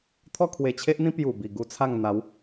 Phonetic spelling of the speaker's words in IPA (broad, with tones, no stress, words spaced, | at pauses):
t̪ʰɔ˥˧kʰwe˧t͡ɕʰe˦ʔn̪ĩ˦ pju˨˩bi˨˩ ɡu˦t͡sʰa˥˧ŋ n̪a˨˦w